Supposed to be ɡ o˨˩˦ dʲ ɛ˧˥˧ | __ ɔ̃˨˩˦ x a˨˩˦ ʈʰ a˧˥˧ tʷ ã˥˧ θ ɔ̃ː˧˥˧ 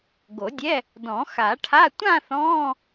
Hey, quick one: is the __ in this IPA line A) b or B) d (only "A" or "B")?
B